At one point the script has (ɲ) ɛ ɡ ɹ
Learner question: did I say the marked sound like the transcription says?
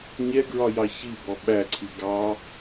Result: yes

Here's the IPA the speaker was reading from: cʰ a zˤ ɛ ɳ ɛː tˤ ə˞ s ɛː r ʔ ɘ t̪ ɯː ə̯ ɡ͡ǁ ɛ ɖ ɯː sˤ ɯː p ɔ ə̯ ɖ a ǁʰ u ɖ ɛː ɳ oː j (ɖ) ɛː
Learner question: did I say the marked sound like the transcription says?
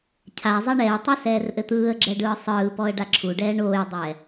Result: no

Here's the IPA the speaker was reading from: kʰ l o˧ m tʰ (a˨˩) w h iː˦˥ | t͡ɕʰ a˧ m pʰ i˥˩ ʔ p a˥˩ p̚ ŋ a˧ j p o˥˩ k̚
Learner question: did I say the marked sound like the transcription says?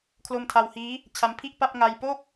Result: no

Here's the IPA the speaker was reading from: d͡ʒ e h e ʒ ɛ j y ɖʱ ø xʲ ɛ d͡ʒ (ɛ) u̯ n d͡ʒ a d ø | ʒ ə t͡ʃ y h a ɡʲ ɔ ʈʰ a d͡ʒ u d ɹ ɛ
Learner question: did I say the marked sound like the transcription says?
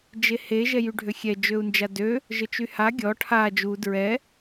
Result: no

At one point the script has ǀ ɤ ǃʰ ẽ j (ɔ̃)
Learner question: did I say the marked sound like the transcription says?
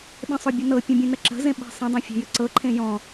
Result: yes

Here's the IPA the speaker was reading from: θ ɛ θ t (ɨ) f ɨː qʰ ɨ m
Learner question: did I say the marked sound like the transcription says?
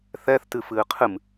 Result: yes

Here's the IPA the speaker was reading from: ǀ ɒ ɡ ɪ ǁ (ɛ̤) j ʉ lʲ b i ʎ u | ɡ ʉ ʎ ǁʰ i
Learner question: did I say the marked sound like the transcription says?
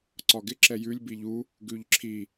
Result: no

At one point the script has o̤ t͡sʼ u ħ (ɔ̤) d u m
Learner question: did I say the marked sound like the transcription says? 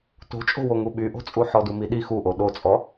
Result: no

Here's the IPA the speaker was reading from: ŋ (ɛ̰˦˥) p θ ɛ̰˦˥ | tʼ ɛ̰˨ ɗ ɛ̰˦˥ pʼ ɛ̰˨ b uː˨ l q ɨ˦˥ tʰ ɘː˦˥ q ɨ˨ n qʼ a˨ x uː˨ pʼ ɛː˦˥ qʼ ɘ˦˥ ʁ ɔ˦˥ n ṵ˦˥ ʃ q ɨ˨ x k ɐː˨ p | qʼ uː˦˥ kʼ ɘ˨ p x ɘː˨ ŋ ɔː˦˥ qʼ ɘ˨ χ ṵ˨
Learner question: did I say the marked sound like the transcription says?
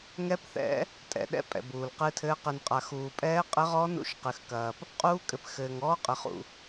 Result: no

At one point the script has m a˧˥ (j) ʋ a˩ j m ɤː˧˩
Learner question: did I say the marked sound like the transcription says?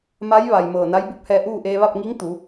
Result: yes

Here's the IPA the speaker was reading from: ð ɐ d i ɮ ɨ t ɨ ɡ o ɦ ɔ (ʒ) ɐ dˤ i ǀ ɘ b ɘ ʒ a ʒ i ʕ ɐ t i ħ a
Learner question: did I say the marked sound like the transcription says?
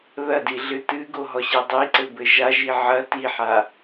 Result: no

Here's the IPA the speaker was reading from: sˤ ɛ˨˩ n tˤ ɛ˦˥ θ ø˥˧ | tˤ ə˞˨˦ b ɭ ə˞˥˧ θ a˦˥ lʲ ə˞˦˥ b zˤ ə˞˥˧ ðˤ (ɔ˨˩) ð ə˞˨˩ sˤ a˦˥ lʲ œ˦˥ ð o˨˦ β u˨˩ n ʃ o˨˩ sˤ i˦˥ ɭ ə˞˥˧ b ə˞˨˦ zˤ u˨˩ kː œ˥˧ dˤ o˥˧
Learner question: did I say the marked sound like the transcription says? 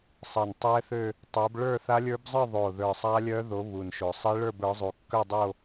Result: no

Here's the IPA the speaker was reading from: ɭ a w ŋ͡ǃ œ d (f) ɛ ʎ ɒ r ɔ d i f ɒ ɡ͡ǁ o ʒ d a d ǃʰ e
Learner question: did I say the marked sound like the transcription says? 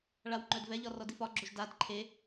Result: no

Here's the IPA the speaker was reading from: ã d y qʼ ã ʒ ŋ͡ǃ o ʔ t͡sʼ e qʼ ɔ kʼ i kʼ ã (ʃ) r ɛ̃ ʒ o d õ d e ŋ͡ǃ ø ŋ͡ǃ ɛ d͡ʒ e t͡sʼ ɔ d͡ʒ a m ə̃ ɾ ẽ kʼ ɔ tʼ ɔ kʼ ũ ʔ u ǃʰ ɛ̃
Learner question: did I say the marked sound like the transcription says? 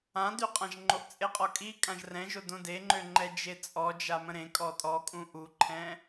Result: no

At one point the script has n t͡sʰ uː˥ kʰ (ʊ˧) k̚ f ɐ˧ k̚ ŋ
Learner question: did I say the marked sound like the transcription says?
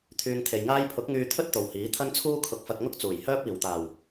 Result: yes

